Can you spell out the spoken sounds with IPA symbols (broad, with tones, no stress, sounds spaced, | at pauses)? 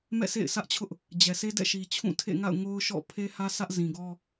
m ɛ̰˦˨ s ḛ˦˨ ɪ̯ s ä˦ ʔ t͡ɕʰ ʊ˦ ʔ | d͡ʑ ɛ˨ sʰ e˦ d ɛ̰˦˨ ʃ i˨ t͡ɕʰ ũ˦˨ tʰ ḛ˦˨ ŋ a̰˦˨ ʊ̯ ŋ o˦ ʊ̯ ʃ ɔ̰˦˨ pʰ e˦ h ä˦ sʰ ä˦ ʔ z ĩ˨ ɡ ɔ˦